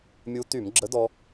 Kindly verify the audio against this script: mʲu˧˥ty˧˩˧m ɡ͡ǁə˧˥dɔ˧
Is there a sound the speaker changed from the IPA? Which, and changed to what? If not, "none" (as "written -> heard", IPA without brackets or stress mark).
none